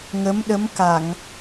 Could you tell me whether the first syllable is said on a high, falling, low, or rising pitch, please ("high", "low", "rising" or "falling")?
rising